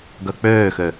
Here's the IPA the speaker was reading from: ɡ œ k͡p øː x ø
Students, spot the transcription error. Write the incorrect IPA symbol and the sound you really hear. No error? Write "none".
none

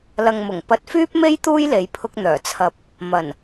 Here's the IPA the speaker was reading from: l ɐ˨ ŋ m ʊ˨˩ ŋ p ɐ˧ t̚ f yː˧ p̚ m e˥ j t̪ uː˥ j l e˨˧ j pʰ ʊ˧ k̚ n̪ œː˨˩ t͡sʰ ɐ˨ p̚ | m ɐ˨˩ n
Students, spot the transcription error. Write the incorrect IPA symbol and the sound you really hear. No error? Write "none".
yː˧ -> yː˥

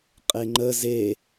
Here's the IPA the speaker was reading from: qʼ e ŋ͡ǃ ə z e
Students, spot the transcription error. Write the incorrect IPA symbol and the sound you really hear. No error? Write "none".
none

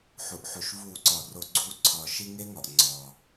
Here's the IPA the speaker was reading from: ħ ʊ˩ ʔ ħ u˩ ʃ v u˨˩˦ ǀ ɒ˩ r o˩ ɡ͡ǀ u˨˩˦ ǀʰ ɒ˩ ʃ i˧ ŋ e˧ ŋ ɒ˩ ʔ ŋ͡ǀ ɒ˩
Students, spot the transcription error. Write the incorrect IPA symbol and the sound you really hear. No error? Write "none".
ʊ˩ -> u˩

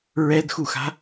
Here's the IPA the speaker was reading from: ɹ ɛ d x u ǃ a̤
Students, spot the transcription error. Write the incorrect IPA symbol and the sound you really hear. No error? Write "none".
ǃ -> x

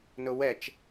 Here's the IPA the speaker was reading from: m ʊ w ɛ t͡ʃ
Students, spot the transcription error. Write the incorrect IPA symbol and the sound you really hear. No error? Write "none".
m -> n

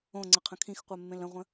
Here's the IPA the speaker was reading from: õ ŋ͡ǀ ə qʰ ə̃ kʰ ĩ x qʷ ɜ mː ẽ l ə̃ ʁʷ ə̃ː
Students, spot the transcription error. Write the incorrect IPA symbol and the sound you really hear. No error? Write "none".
ə̃ː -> ə̃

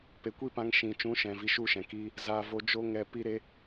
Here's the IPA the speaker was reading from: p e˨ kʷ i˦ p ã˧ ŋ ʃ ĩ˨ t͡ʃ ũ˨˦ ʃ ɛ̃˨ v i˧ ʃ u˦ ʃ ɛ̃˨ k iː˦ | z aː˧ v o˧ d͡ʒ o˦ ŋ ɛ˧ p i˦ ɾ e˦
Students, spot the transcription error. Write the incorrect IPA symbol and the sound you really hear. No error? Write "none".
none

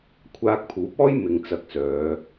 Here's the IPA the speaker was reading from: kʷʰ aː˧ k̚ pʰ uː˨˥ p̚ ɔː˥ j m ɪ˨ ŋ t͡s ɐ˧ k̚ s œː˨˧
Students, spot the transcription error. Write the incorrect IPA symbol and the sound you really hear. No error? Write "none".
none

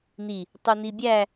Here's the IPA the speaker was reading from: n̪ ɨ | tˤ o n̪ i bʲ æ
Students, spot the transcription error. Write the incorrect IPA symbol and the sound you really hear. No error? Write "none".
ɨ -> i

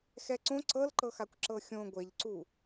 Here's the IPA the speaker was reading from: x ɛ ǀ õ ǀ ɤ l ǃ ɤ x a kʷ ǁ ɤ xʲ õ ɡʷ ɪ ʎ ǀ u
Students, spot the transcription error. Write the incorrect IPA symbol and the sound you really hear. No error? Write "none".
ɪ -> ɛ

